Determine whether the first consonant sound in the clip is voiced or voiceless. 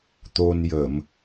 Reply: voiceless